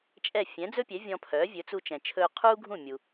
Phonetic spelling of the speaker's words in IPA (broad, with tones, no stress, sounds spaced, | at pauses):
t͡ʃʼ ɛ˥˩ fʲ ɛ̃˩˥ d͡z ɵ˥ pʲ ɛ˩˥ vʲ ɔ̃˧ pʰ œː˩˥ vʲ ɵ˩˥ t͡s u˧ t͡ʃ ɛ̃˩ t͡ʃʰ ɵː˧ qʰ uː˥ ɡʱ ũ˥˩ mʲ u˩